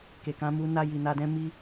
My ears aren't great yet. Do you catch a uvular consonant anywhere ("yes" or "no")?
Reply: no